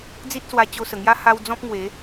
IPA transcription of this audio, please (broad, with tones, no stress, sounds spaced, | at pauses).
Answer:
d͡z i˦ t̚ s w a˧ t͡ɕ o˧ s ə˨˩ ŋ j a˦ h a˧ w d͡z ɔ̃˦ p̚ ŋ w e˨˦